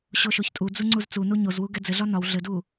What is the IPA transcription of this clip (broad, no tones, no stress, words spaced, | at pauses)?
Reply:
ɕoʃoçtʼud͡zu ŋ͡ǀuzt͡sunu ɲozwu ɡɛd͡zɘɮɒ nɒw ɮɘdu